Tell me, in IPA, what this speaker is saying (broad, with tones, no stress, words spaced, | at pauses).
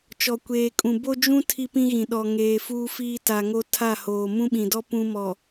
t͡ʃɔ˨kʷeː˨kʼũ˨ bo˦d͡ʒũ˦ tʰi˦pĩ˦ɣĩ˨ ɗɔ˨ŋeː˨ fuː˦fiː˦ ta˨ŋo˦ tʰa˦˨hoː˨ mũ˦ɓĩ˨dɔ˦ pũ˦mɔ˨